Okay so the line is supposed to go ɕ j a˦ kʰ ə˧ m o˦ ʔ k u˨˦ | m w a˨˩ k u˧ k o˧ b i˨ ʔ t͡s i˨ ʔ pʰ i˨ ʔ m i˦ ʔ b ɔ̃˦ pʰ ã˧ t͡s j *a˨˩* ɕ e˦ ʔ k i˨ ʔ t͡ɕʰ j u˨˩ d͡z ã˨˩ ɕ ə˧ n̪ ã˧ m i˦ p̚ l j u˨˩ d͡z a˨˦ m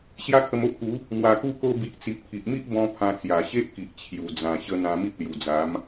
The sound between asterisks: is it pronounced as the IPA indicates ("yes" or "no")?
yes